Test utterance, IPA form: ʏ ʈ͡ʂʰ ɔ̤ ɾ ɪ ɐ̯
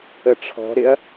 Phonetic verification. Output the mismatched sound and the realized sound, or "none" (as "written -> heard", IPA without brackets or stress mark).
ʏ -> ə